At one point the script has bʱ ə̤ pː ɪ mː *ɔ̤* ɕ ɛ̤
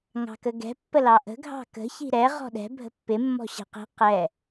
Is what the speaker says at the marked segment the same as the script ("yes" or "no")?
yes